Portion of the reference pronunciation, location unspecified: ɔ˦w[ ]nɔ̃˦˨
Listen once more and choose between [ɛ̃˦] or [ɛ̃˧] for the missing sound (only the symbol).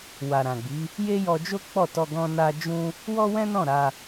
ɛ̃˦